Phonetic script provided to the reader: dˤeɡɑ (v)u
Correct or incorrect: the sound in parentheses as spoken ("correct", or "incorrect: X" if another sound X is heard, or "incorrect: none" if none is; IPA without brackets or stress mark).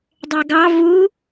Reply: correct